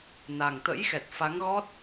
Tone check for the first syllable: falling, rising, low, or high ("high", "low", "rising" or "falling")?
low